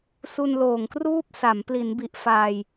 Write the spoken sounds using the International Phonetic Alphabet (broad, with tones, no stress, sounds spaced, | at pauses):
s u˧ n l oː˨˩ ŋ k r uː˥˩ p̚ s a˩˦ m p l i˩˦ n b i˨˩ ʔ f aː˧ j